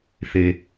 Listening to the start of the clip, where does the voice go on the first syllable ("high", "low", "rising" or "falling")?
low